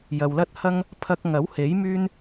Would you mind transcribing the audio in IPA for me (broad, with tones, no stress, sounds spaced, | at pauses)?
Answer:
j ɐ˨ w l ɐ˥ t̚ h ɐ˥ ŋ | pʰ ɐ˧ k̚ ŋ ɐ˨˥ w h e˨˥ j m yː˥ n